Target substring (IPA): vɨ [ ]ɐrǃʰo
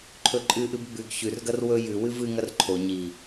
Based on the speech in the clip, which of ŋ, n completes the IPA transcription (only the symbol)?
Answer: ŋ